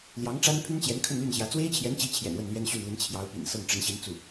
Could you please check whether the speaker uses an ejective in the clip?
no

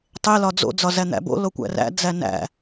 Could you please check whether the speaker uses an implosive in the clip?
no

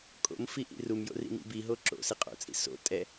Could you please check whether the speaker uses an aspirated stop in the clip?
no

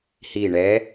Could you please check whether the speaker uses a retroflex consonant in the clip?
yes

